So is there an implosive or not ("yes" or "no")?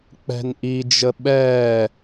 yes